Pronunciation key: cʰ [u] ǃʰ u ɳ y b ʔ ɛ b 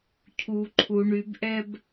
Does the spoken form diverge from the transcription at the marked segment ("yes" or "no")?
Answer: no